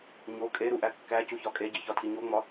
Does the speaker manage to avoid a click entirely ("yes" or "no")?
yes